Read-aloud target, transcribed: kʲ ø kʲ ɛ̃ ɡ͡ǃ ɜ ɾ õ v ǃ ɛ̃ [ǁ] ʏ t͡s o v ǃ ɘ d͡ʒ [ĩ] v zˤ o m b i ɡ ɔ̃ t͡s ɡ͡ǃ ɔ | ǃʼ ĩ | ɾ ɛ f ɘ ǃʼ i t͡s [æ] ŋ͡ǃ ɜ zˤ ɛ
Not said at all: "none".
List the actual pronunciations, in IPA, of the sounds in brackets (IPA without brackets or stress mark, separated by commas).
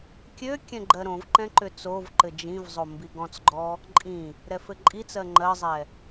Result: ǃ, ĩ, ɜ